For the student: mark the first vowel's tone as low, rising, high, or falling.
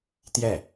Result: falling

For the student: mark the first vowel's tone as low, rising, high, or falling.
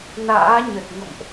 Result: rising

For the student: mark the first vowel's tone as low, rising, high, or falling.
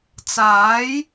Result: rising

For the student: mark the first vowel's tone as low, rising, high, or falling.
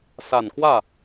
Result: low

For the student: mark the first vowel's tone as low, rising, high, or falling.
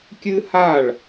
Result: high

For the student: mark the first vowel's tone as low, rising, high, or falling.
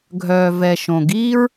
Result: low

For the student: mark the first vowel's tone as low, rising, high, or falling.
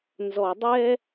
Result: low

